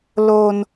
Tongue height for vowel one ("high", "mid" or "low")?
mid